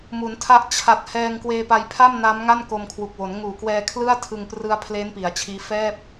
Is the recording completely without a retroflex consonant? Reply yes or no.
yes